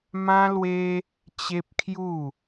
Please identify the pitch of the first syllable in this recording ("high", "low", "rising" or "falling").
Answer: high